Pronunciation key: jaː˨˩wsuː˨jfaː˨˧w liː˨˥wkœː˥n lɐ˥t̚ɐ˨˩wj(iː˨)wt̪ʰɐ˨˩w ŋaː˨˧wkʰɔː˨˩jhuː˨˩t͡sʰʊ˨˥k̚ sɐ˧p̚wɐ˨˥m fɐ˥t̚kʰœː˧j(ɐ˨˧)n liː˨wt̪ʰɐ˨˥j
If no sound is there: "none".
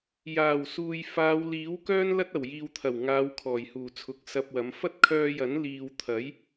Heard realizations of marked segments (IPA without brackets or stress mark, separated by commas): iː˨, ɐ˨˥